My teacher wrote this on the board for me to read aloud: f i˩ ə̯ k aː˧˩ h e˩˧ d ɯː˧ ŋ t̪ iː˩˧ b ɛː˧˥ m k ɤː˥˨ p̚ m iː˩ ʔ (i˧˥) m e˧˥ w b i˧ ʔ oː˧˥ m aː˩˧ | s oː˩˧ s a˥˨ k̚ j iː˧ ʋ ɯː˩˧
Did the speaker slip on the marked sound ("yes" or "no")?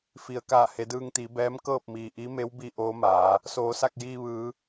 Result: no